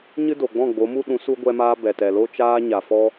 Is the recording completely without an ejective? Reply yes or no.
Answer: yes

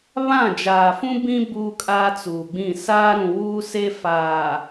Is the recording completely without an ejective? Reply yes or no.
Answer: no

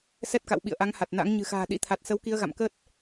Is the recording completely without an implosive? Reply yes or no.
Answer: no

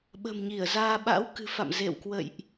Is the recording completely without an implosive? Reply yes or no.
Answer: no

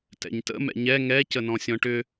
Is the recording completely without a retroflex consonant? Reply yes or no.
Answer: no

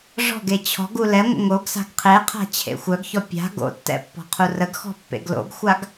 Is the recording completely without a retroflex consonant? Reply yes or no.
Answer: no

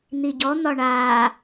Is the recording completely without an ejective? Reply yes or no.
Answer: yes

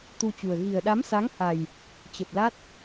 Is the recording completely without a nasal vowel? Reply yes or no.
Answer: yes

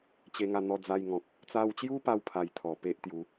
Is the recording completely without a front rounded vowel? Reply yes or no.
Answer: yes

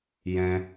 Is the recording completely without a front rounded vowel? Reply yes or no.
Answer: yes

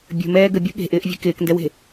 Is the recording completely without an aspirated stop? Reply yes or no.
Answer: yes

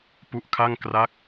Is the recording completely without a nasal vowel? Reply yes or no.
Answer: yes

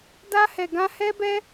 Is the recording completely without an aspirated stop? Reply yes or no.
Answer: yes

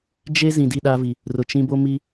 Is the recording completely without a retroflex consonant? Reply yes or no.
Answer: yes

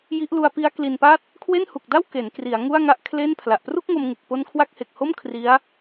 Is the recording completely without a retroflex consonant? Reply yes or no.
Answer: yes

